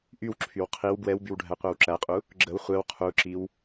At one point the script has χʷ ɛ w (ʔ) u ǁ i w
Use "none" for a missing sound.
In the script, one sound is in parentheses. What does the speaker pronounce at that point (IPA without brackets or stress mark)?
qʰ